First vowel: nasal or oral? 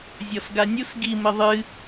oral